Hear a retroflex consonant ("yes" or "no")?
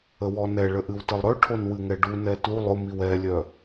yes